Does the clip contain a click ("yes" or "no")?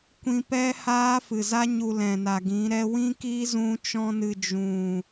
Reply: no